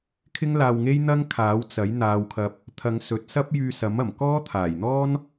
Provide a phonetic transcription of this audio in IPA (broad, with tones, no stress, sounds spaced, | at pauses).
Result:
kʰ ɪ˥ ŋ l aː˧ w ŋ e˥ j n̪ ɐ˥ ŋ kʰ aː˨˥ w t͡s ɐ˨˥ j n̪ aː˨ w kʰ ɐ˨ p̚ | t̪ʰ ɐ˨˧ ŋ s ɵ˨˥ t̚ s ɐ˥ p̚ j yː˧ s ɐ˨˥ m ɐ˨˩ m k ɔː˥ t̪ʰ aː˨˩ j n̪ ɔː˥ n